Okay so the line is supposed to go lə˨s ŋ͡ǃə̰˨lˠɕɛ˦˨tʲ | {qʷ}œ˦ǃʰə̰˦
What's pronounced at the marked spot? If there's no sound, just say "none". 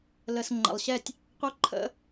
qʷ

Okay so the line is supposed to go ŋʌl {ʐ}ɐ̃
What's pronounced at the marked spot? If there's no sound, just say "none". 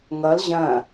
ʑ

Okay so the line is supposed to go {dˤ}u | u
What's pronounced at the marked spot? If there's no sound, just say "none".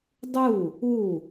dˤ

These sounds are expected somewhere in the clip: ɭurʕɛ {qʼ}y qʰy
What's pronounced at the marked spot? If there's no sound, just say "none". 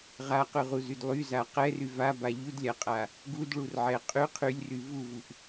qʼ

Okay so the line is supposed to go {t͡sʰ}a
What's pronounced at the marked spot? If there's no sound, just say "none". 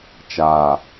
t͡ʃ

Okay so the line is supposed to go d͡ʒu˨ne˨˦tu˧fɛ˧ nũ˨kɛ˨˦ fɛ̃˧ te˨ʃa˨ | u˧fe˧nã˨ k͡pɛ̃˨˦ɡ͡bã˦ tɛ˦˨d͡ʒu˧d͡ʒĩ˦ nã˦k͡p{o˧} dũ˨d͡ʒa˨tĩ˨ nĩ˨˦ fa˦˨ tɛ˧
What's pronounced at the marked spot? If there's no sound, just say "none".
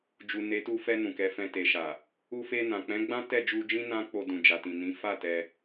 o˧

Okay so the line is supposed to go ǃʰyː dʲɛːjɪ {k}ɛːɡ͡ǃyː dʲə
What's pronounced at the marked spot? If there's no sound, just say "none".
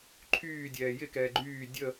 k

